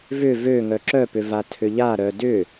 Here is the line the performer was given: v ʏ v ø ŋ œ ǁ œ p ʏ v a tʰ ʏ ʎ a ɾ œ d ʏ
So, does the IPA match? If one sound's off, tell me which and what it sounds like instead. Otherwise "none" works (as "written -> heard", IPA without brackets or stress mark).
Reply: none